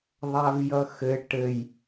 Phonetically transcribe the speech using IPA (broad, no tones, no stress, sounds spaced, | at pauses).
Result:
ðˤ a v j ʌ x ɘ ʈ ɘ j